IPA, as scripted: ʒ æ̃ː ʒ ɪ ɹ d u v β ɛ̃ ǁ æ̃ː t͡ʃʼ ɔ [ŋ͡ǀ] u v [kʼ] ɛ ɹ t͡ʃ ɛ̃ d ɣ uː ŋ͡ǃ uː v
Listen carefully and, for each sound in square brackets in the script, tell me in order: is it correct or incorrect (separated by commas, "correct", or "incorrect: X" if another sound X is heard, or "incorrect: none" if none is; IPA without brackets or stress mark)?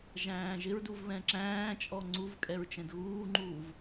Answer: correct, correct